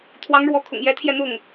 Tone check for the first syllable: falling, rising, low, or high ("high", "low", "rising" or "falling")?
rising